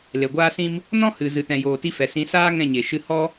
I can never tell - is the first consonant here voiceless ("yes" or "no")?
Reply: no